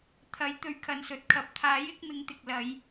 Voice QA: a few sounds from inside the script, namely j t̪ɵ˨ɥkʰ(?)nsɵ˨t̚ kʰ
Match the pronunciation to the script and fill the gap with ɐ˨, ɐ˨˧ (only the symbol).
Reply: ɐ˨